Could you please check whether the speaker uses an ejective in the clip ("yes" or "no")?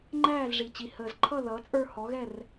yes